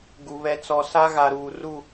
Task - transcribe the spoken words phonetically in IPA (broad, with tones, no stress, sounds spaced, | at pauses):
ɡ u˨ β ɛ˨ t͡s ɔ˨ s a˦ ɣ a˨ ɾ uː˨ r u˦˨